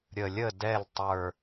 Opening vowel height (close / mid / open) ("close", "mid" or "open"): mid